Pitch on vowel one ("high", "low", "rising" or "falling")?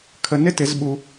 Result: low